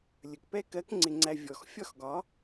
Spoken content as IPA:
lʲ ə˨ k p ɛ˦ k ɜ˨˦ k ŋ͡ǀ ɪ˨ ŋ͡ǀ æ˨ vʲ ɔ˨ x fʲ ɒ˦ x ɡ ɒ˨˦

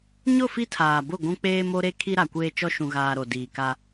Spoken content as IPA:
ɲ ʊ˦˨ f i˦ tʰ aː˨ b ʊ˦˨ ɡʷ ũ˦ k͡p eː˦ m o˦ ɾ e˦ kʰ i˦ ɾ a˨ kʷ eː˦ t͡ʃ ɔ˦ ʃ ũ˨ ɣ aː˨ ɾ o˨ d iː˨ k a˦

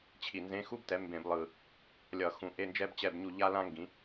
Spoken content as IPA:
t͡ɕʰ i˨˩ n z ẽ˧˥˧ x u˥ b t ɛ˨˥ m b ẽ˧˩˧ b lˠ ɯ˨˩ | lʲ ʌ˧˩˧ x ũ˨˥ ʔ e˧˥˧ n d͡ʒ ɛ˥ b t͡ɕ ɛ˦˨ b ɲ u˦˨ ʎ a˥ l ã˥ ŋ ɡ ĩ˨˥

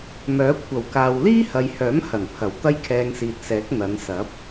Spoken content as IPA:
m œː˨˥ kʷʰ ɐ˨˩ w k aː˨ w l iː˥ h ɐ˨ j h œː˨˥ m h ɐ˨˩ n pʰ ɐ˨˩ w t̪ ɐ˥ j kʰ ɛː˧ ŋ s iː˨ t̚ s ɛː˨˥ k̚ n̪ ɐ˨˧ n s ɐ˨˥ p̚

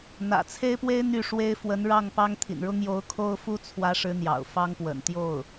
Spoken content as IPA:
n̪ ä̰˨˩ t͡sʰ e˥ ɪ̯ p w e˥ ɪ̯ n̪ y˥˩ ʂ w e˥ ɪ̯ f w ə˧˥ n ɻ ɑ˥˩ ŋ p ɑ˥ ŋ t̪ʰ ḭ˨˩ n ɻ ʊ˥ ŋ j o˧˥ ʊ̯ kʰ o˥ ʊ̯ f u˥ t͡sʰ w ä˧˥ ʂ ɻ̩˧˥ n̪ j ɑ̰˨˩ ʊ̯ f ɑ˥ ŋ p w ə̰˨˩ n t̪ j o˥˩ ʊ̯

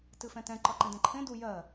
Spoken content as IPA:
t ɨ f ɛ̃ t ɛ̃ ǃ ɒ ǃ ɛ̃ d ɛ̃ ǃʰ ẽ d u j ɜ

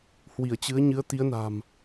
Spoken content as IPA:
h w i˧˩ ə̯ t͡ɕ ɨ˨˦ ə̯ ɲ ɨ˨˦ ə̯ t̪ i˨˦ ə̯ n a̤˨˩ m

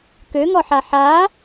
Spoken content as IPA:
k ø ŋ ɔ ħ a ħ a

